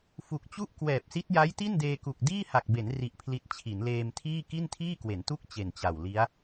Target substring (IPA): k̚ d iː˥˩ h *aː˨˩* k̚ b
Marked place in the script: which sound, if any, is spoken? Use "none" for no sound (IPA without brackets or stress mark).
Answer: a˨˩